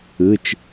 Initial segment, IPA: ɯ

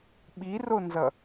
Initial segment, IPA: ɓ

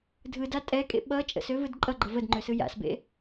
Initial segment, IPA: dʱ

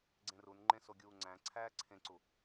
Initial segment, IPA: ɡ͡ǀ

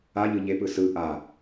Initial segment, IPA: a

